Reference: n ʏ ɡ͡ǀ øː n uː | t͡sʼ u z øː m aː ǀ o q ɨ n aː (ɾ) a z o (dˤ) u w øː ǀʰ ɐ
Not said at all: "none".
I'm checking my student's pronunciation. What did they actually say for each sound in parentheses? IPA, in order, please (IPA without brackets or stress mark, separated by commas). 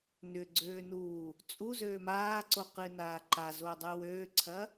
ǃ, dˤ